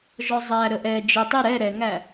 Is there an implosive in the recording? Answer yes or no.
no